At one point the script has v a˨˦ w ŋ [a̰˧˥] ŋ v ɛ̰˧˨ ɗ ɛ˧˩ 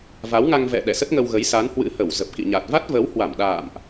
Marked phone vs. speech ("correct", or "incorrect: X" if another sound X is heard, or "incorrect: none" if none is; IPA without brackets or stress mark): incorrect: a˧